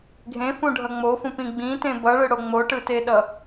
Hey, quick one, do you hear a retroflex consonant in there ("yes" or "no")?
yes